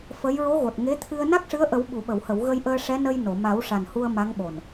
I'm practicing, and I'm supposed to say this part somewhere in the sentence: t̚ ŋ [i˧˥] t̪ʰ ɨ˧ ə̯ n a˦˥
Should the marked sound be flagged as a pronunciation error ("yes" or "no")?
yes